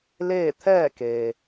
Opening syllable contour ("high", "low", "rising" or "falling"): falling